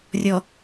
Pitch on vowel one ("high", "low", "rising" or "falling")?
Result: low